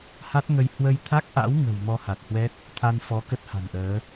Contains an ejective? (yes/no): no